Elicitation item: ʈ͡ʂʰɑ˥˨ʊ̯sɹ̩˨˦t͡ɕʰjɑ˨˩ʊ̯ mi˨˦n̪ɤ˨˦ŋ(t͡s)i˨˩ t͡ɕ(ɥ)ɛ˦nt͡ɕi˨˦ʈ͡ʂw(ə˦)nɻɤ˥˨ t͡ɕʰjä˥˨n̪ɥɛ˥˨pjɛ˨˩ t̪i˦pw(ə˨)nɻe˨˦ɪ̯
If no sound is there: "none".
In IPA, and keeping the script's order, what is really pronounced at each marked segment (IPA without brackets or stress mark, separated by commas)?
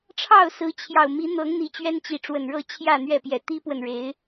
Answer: n̪, ɥ, ə˨˩, ə˨